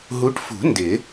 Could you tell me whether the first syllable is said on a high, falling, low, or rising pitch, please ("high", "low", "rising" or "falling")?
rising